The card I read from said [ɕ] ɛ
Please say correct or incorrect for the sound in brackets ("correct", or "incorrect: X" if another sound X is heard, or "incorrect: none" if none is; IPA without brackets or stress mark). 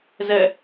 incorrect: z